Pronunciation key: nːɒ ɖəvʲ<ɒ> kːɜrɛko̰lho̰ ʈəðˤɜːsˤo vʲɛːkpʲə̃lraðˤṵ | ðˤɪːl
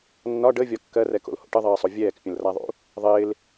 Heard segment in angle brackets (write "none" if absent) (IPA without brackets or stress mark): ɒ